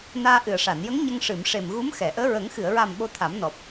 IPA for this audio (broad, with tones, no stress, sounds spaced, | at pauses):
n aː˧ ʔ ɨ˨˩ ə̯ ʂ a˨˩˨ n j ə˧˥ ŋ ɲ ə˧ ŋ ʂ ɨ˨˩˨ m ʂ e˨˩ m ɣ u˧˥ m x ɛ˨˩˨ ʔ əː˧˥ ɹ ə˨˩˦ ŋ x ɨ˨˩˨ ə̯ ɹ a˨˩ m ɓ o˧ t̪ʰ a˨˩˦ m n ɔ˨˩ p̚